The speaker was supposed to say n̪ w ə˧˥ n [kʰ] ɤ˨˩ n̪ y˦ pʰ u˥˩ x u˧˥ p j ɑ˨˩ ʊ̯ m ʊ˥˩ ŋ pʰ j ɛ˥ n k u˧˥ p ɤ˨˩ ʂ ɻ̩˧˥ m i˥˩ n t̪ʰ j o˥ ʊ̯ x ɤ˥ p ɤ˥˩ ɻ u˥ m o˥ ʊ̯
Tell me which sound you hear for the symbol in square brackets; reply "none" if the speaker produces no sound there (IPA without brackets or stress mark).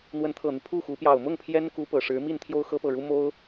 t̪ʰ